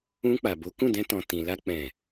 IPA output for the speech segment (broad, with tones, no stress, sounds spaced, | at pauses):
ũ˧ k͡p a˨ b o˨˦ k ũ˦˨ d ɛ̃˧ t ɔ̃˨ t ĩ˨ l a˧ k͡p ɛ̃˨